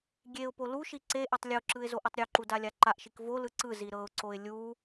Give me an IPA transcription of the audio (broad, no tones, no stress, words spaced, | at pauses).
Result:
ɡʲeʊ̯ poluʃi ǀe ʔetˤlʲoǁɯɪ̯ zoʔotˤɾʲoǃu dalʲaǃaʔʃik volɯ ǀɯ ziɾɤʊ̯ǀoɪ̯ lʲu